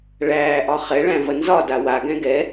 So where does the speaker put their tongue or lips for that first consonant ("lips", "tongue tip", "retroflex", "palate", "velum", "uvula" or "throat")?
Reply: retroflex